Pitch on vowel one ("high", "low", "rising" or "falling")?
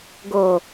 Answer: low